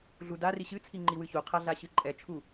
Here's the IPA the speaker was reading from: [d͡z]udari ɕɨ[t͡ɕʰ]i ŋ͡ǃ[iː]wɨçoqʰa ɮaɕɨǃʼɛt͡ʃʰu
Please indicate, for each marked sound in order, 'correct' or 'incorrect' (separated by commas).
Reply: incorrect, incorrect, incorrect